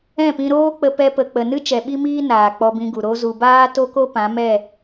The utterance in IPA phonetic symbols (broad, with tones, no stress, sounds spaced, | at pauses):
ɛ̃˦˨ p ĩ˧ ɾ oː˦ k͡p ə˧ p ɛ˧ p ə˨ k͡p ə˨ n ɨ˦ t͡ʃ ɛ˨ ɓ i˦ m iː˦ n aː˨ k͡p ɔ˧ b ĩ˧ ɡ u˨ ɾ o˧ z u˨ b aː˦ t o˦ k o˦ p ã˨˦ m ɛ˦˨